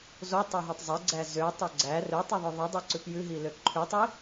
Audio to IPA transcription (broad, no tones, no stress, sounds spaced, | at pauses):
z o tˤ ɵ ɦ o tˤ zˤ e ɡ͡ǀ æ z ø tˤ ɵ ɡ͡ǀ æ r ø tˤ u ðˤ ɵ ðˤ i dˤ ɛ ǀ ʉ p j ʉ ɦ i l ø ǃʰ ʉ tˤ i